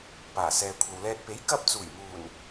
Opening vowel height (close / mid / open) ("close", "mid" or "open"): open